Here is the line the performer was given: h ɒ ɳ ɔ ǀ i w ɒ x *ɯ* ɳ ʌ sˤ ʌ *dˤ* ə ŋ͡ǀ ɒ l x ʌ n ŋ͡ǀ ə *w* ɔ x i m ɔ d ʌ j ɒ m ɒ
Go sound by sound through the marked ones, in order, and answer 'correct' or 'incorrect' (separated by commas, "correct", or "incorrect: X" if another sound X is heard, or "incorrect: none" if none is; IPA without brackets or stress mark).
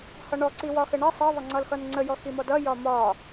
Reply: incorrect: ə, incorrect: ðˤ, incorrect: j